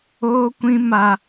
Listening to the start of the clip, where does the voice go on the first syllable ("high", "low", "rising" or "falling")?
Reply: high